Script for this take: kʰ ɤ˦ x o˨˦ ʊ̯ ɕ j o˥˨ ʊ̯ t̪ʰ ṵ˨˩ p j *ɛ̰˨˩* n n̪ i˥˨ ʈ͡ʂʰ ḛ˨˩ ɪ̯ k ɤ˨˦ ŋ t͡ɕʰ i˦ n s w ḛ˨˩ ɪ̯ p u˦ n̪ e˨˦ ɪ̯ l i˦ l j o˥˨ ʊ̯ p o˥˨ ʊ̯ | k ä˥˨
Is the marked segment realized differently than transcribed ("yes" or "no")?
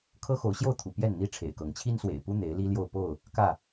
yes